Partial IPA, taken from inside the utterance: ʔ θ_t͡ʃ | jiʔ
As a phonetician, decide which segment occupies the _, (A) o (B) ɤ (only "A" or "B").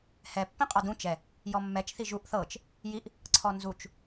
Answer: B